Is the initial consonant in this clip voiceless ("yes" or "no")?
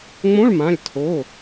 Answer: no